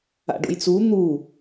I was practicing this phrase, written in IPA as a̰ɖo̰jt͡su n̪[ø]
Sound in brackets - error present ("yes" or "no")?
yes